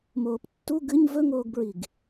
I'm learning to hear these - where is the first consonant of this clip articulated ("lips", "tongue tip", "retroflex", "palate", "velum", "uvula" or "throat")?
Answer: lips